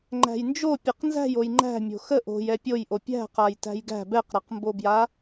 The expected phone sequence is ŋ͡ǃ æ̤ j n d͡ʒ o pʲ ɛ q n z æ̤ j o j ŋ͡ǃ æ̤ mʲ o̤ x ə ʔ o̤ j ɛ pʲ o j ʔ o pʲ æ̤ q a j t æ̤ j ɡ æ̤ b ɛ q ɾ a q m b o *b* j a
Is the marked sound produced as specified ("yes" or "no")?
yes